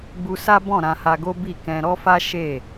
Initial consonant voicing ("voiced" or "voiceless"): voiced